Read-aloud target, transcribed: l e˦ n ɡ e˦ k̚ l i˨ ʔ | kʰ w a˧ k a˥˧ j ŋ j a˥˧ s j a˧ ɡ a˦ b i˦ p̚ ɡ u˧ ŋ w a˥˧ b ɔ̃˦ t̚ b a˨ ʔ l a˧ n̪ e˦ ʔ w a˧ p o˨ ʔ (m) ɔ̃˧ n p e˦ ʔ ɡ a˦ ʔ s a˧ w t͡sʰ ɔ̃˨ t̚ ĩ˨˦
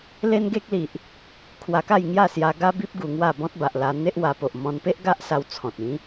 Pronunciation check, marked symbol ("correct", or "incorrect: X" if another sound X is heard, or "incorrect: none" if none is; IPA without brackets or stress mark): correct